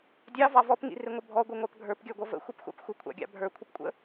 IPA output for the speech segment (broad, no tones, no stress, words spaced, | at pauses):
dʲɑvɑ vɔpŋḭrɪŋʷə bʱɔɡʷiŋʷɑp ɡʱə˞pɡʲə˞ɡʷʌ və̰xʷipxʷɑ̰p xʷɪkʷʰɑ̰ɡʲɑ̰ bʱə˞kʷʰəpkʷʼə̰